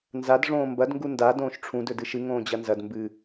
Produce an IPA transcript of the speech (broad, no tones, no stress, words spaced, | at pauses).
nzadʐõː mbɐdŋɡu nda dõːʃʈ͡ʂʰũ dɵdɨʃɨ ŋõːd͡ʑɐnzɐd mbɨ